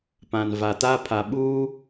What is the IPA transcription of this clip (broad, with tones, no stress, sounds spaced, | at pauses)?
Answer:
p ã˨ n v a˨ t a˦ pʰ a˨ ɓ uː˦